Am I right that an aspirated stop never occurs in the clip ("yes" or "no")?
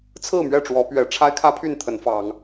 no